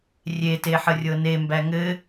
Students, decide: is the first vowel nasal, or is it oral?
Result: oral